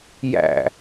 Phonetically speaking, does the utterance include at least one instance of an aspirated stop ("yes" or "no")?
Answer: no